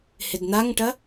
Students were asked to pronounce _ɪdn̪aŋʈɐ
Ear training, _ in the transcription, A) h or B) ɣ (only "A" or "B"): A